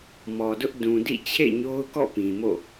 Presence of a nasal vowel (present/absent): present